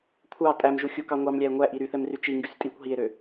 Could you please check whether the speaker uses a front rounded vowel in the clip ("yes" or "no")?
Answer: yes